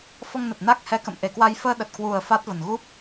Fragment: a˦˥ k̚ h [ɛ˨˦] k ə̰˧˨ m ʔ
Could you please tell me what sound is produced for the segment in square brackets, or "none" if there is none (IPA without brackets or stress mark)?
ɛ˨˦